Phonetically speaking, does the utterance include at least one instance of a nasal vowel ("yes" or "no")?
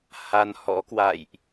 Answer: no